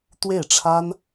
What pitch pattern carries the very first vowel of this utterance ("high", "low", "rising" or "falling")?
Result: falling